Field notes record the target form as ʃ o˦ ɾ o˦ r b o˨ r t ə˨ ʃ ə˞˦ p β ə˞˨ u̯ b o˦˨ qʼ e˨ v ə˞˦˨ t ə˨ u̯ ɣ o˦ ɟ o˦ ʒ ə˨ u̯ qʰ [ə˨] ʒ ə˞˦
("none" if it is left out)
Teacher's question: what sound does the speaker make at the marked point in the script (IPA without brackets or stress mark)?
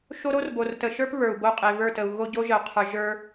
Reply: ə˞˨